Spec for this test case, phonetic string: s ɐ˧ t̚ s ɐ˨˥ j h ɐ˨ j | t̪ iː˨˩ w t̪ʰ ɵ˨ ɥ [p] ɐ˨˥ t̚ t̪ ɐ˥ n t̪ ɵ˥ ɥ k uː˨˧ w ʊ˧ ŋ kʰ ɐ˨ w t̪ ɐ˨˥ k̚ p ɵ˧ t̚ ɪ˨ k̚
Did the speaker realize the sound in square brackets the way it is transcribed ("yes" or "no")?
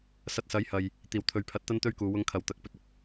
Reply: no